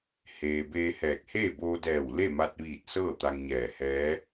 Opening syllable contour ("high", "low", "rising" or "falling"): low